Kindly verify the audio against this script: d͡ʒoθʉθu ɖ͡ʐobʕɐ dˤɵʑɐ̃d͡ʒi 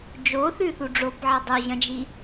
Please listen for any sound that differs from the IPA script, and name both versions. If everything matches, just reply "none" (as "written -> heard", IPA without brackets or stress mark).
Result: none